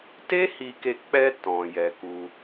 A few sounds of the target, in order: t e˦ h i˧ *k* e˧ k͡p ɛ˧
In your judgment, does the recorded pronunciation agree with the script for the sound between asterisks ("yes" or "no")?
yes